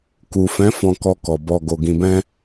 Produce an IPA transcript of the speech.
k u˨ f ɛ̃˨˦ f ɔ̃˧ k ɔ˧ k ɔ˨ b ɔ˨ ɡ o˨ ɡ ĩ˨ b ɛ̃˧

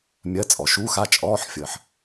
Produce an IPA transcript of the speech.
mʲ ɜ˧˥˧ t͡sʼ ɔ˨ ʃ uː˧˥˧ x a˥˧ t͡ʃʼ ɔː˧˥˧ ħ fʲ əː˨ ħ

